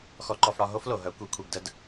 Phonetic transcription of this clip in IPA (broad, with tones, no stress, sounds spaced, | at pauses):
x ɔ˧ ǃ ɔ˧ f ɽ ɒ˧ ɦ o˥ f l o˩ ɦ œ˩˧ kʷ i˩˧ kʷʰ i˩ ɡ d ə˧ d